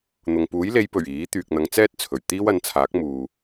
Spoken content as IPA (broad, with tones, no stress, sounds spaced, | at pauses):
n̪ ʊ˨ ŋ p uː˨˥ j l e˨˧ j p ɵ˨˩ ɥ iː˨˥ t̪ yː˨ k̚ n̪ ɐ˨˧ ŋ t͡s ɛː˥ t̚ t͡sʰ ɵ˨˩ ɥ t̪ iː˥ w ɐ˨˧ n t͡sʰ aː˨˥ k̚ m uː˨